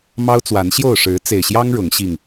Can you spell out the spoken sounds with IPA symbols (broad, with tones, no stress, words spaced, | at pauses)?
mɑ˦ʊ̯t͡swa˨˦nɕjo˥˨ʊ̯ʂɻ̩˨˦ t͡se˨˩ɪ̯ɕjɑ˦ŋ ɻʊ˨˦ŋ ɕi˨˩ŋ